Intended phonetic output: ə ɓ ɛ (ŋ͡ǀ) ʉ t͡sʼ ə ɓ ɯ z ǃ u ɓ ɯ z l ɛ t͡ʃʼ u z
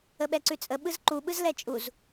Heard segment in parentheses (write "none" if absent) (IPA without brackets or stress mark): ǀ